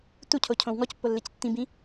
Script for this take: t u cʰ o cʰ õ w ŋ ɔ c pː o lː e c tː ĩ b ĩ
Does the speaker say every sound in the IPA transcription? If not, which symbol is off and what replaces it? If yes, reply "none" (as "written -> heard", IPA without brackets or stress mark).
none